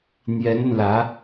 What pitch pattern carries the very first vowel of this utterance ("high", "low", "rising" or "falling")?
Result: rising